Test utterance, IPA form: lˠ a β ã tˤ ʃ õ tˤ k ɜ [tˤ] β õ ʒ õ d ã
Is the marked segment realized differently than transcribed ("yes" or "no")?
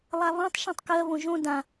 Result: yes